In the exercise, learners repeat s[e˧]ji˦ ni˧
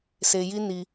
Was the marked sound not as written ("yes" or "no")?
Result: no